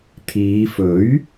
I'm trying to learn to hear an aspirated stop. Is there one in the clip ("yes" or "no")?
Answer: yes